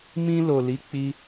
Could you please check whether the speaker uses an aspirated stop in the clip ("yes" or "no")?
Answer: no